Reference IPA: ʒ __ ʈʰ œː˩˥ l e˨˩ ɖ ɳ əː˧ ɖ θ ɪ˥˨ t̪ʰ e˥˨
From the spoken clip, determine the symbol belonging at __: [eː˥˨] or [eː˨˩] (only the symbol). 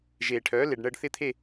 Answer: eː˨˩